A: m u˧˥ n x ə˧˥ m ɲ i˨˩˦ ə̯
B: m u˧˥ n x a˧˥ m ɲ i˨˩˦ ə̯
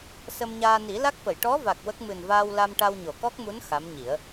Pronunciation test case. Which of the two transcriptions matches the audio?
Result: B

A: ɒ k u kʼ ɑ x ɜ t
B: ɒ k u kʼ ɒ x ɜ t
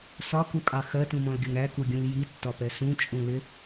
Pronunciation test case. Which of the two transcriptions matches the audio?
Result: A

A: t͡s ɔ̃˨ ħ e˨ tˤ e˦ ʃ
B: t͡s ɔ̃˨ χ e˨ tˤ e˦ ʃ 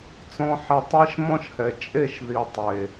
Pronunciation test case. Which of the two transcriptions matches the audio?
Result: A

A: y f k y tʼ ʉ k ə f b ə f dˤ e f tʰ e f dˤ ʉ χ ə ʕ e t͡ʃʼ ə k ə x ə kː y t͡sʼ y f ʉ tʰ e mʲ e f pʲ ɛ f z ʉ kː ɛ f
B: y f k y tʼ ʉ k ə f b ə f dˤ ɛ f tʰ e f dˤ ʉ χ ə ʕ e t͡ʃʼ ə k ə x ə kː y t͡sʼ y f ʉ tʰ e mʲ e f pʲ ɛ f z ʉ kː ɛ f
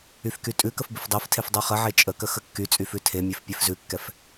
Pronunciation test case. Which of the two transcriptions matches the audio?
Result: A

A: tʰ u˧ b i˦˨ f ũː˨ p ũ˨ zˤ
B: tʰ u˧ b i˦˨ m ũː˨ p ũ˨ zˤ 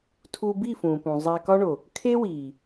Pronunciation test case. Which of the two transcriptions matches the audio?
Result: A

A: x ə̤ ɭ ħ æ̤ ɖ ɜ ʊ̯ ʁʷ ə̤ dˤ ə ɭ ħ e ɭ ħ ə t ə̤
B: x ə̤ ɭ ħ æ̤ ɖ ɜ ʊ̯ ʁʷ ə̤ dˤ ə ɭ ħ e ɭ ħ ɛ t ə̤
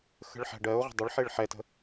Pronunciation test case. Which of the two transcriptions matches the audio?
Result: B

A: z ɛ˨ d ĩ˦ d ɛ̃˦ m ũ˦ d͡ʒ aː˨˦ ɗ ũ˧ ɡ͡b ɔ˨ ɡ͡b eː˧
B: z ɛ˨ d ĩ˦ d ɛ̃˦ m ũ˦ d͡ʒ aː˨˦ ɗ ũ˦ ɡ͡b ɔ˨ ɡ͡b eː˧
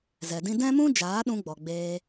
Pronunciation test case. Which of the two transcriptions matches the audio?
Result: A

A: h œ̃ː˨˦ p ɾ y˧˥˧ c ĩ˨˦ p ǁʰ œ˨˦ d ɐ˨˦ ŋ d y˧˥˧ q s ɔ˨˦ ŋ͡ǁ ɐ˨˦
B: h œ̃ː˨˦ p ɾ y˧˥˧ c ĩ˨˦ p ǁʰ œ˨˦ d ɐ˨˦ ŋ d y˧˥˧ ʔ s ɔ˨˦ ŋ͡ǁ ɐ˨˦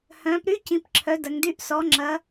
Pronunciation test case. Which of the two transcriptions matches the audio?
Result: B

